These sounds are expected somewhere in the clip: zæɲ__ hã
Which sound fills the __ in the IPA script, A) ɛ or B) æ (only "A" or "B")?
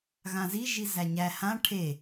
B